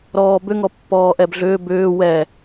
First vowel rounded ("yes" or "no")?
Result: yes